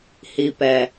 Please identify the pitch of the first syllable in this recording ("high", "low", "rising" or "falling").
low